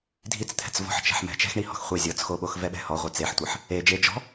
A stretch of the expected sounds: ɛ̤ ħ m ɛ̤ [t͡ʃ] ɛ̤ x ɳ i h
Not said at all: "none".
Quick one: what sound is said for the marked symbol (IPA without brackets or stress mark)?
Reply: t͡ʃ